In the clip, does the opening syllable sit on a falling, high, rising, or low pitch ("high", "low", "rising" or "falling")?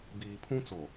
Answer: low